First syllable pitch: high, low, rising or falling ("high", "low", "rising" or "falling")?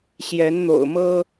rising